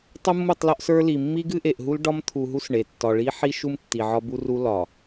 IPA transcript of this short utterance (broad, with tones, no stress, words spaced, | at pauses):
tˤu˦mːu˦˨tˤlɒ˦ʔ sə˞˦li˨ mːi˦ɡɨ˦ʔe˨ʔɦu˦l ɖɒ˦mt̪ʰu˨ɦu˦s ɳe˨ tːɒ˨ɭi˦ħi˦ ʃu˦m tːi˨ʕɒ˦bu˦ru˦ lɒ˨